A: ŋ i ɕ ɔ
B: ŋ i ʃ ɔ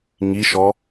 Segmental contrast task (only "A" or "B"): B